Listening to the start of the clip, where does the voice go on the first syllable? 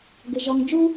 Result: high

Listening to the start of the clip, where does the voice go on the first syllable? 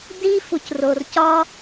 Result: high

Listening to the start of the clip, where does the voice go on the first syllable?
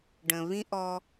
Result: low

